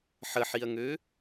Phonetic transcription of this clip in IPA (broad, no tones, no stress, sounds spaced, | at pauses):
ħ ə ħ i ɐ̯ ŋ ø